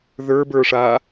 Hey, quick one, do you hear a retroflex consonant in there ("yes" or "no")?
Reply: yes